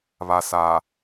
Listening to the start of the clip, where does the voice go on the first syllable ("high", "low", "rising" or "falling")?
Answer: low